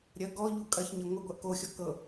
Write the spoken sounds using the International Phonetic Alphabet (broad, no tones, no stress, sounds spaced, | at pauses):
ɾʲ ɐ ɡ ɔ ʎ u kʼ ɐ ç ɲ ɐ ŋʷ ɪ ɡʷ ɐ ʔ k o xʲ ɔ k ɤ